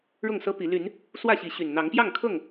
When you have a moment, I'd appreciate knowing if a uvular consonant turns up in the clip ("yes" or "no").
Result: no